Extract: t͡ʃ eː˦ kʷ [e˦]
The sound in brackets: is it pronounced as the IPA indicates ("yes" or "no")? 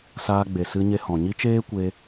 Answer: no